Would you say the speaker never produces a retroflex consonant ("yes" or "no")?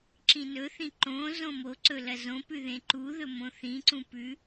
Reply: yes